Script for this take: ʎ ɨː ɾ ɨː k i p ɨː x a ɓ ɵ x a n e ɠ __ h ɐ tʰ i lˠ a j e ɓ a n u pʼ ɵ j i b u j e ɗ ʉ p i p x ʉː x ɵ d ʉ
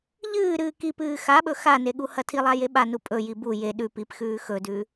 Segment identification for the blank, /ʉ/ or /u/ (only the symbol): u